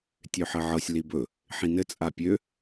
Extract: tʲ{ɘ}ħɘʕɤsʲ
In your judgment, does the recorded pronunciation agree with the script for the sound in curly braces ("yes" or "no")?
no